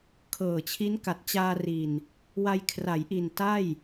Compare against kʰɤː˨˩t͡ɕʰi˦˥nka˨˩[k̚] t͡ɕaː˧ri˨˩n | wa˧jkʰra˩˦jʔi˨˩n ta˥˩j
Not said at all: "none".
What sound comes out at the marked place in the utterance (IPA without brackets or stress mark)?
t̚